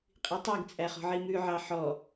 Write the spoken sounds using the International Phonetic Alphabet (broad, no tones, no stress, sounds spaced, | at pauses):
qʼ i tˤ i ɡ t͡sʼ æ χ ɔ̤ ʕ i m ʉ ʕ ɑ ħ ɔ